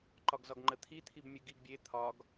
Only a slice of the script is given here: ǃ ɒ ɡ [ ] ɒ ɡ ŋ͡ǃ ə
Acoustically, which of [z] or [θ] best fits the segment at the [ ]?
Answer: z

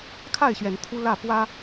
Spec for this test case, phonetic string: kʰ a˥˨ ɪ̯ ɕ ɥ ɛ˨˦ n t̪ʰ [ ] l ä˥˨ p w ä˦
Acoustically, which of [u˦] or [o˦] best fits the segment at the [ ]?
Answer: u˦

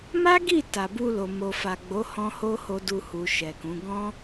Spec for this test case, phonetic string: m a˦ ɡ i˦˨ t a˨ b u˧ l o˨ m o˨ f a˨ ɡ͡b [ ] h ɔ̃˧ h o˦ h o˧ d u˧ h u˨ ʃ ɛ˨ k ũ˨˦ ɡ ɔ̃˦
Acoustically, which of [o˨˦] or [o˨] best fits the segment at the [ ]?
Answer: o˨˦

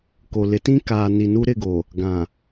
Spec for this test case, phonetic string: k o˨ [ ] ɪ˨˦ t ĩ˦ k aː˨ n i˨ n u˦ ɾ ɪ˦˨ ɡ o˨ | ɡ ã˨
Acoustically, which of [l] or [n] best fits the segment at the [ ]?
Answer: l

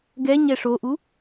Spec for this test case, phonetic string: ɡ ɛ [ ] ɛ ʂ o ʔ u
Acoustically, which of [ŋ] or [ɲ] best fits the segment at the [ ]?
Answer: ɲ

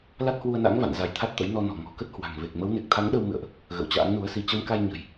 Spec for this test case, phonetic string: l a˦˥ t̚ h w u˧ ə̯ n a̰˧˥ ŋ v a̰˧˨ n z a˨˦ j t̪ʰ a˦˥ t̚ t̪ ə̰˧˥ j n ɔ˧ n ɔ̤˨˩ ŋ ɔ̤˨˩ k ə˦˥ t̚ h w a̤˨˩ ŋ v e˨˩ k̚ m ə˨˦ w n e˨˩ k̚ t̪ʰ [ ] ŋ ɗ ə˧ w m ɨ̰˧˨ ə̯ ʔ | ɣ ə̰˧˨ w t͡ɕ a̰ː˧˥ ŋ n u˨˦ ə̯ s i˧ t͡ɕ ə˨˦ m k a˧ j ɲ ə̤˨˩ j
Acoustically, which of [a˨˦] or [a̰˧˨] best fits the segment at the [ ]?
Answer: a˨˦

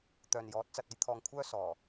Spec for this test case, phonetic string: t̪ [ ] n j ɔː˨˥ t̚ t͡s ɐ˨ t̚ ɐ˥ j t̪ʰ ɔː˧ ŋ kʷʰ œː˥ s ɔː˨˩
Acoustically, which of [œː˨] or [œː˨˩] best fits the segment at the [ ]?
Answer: œː˨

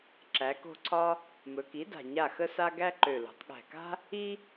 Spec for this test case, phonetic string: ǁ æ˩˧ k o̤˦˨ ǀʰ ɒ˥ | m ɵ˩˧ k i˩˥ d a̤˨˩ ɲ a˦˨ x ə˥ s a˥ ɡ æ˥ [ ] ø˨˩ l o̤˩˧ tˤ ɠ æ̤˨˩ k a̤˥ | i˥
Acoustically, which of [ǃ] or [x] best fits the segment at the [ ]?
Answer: ǃ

